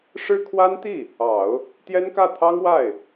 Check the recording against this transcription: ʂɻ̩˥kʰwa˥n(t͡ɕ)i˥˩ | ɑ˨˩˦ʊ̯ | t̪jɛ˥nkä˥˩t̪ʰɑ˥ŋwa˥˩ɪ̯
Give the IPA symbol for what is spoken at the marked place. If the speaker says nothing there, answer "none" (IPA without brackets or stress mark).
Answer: t̪